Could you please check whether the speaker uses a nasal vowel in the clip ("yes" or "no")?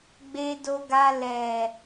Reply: no